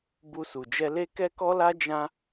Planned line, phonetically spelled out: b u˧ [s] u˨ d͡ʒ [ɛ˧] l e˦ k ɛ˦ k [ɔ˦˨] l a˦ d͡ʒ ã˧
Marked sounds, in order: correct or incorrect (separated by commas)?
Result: correct, correct, incorrect